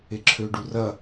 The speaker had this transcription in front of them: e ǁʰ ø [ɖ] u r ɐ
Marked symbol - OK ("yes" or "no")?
yes